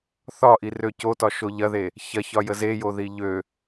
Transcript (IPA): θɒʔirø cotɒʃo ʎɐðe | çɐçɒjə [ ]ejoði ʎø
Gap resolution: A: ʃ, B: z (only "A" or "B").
B